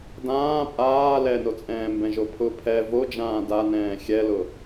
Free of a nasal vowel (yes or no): no